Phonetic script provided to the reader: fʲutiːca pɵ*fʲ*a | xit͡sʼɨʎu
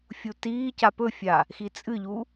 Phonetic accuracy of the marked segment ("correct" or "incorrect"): correct